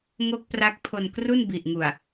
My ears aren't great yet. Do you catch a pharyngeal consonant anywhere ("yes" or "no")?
no